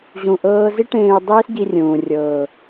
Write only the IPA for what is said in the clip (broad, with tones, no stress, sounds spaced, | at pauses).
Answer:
ʑ ũ˧ ʔ ɤː˦ z i˦ ʈ ẽː˧ y̯ dˤ iː˦ s ɟ i˧ rʲ ũː˨ rʲ ɤː˨